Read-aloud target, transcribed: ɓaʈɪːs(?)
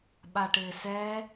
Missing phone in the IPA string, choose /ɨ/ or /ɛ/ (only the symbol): ɛ